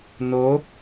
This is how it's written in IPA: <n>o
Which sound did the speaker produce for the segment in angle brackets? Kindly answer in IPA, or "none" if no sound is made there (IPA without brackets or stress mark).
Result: n